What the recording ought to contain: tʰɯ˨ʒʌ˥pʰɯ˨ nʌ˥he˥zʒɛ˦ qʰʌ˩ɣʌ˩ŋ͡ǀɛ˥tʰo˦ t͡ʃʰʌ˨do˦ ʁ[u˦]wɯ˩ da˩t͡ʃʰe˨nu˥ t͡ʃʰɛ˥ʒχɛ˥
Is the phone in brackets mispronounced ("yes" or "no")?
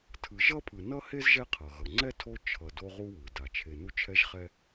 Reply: no